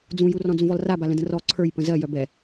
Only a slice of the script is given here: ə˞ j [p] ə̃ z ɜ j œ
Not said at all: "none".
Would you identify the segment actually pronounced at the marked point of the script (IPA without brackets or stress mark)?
p